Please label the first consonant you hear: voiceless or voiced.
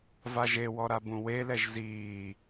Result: voiced